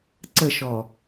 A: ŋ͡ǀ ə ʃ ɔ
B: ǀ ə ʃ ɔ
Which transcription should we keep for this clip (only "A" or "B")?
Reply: B